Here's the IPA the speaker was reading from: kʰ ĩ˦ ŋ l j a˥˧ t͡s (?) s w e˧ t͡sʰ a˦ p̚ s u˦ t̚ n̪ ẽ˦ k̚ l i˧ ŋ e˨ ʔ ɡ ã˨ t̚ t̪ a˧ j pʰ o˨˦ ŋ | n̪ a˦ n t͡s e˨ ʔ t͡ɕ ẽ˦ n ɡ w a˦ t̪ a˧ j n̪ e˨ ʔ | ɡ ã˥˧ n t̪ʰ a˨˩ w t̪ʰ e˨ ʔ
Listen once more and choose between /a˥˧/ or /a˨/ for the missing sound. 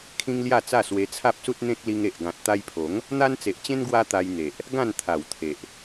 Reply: a˥˧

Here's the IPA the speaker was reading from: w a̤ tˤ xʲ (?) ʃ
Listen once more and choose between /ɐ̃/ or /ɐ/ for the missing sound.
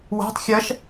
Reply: ɐ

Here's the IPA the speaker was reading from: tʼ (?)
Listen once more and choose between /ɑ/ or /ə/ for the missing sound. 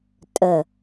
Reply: ə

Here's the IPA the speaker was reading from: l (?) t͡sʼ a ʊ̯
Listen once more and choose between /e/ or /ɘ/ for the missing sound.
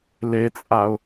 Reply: e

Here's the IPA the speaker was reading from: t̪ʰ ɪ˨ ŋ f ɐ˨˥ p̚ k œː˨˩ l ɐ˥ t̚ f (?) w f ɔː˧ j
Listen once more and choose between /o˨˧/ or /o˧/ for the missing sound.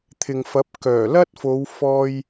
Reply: o˨˧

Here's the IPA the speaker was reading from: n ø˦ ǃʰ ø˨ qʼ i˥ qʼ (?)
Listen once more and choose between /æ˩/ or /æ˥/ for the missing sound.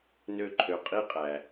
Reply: æ˩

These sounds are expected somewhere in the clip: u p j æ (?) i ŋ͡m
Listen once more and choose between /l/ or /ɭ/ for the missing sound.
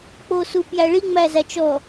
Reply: ɭ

